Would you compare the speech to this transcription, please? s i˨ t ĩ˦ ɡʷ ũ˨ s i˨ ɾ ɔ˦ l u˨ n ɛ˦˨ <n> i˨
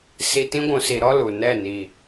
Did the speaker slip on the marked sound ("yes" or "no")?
no